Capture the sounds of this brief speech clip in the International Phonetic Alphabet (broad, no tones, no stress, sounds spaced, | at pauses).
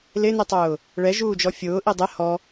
l ɪ n i tˤ ʊː | ɭ ɛ ʒ uː d͡ʒ ɔ fʲ ʊː ʔ i dˤ ɪ h ɔ